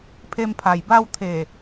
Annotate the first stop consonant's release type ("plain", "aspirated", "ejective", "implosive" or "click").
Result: aspirated